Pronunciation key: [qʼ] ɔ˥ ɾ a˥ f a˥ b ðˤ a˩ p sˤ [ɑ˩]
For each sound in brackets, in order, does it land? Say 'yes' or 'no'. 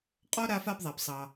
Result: yes, yes

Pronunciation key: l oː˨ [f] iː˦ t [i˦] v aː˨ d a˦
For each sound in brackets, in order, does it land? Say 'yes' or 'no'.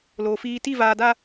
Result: yes, no

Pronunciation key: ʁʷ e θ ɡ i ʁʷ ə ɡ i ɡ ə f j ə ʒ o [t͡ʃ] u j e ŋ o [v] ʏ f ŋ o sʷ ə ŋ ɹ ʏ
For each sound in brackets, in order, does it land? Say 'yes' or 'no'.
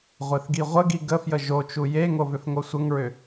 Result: yes, yes

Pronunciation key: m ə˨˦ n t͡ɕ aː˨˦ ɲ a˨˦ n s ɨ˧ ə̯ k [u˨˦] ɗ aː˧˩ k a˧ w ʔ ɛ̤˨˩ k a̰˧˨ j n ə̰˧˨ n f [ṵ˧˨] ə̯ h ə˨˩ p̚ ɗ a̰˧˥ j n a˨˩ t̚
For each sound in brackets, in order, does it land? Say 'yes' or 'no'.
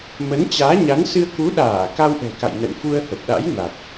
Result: yes, no

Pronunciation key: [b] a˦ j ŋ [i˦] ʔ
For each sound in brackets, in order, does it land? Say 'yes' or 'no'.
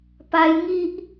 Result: no, yes

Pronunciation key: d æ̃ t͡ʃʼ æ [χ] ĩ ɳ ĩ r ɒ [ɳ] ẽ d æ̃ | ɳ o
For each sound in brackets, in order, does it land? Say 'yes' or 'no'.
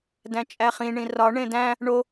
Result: yes, yes

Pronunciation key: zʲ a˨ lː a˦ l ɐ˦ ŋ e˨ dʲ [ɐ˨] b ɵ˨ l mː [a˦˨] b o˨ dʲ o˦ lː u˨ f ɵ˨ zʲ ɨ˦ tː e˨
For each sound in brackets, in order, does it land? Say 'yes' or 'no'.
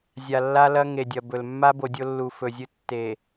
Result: yes, no

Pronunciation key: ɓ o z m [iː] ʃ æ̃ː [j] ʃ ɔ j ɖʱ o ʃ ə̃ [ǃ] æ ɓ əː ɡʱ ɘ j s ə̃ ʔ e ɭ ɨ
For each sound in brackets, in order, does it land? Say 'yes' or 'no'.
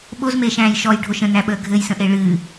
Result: no, yes, no

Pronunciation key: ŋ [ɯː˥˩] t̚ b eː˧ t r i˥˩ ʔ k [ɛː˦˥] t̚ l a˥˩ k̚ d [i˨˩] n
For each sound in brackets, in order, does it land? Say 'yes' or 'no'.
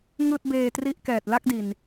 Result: yes, no, yes

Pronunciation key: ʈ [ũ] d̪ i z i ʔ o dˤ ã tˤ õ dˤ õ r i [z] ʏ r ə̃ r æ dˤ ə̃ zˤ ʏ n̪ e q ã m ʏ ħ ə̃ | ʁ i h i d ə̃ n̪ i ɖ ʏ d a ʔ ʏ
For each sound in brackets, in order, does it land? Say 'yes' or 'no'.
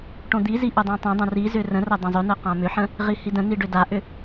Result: no, yes

